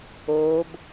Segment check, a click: absent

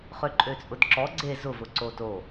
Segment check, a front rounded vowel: present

